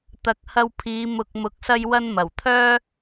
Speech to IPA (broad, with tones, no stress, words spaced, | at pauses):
t̪ɐ˨k̚hɐ˧wpʰiː˨˧ mʊ˨k̚ mʊ˨˥k̚sɐ˧j wɐ˧nmɐ˨˩wt̪ʰœː˥